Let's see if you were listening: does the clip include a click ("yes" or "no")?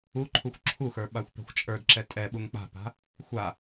yes